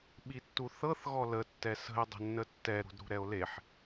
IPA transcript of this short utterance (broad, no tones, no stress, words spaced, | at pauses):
ɓitːuθɤθ ɣɔlə tːɛsə̤e̯ dˤə̤nːətːɛ ɾṳdɾṳɾɛo̯leħ